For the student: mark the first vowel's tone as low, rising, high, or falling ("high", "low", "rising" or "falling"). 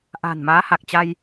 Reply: low